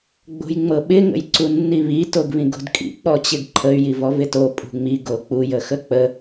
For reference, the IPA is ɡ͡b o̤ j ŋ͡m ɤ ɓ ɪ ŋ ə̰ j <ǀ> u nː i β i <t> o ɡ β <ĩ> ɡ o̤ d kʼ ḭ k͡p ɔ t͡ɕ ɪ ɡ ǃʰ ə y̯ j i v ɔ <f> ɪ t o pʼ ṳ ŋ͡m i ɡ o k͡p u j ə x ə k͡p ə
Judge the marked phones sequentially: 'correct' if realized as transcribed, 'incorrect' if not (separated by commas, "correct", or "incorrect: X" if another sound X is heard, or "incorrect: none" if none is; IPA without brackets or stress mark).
correct, correct, correct, incorrect: v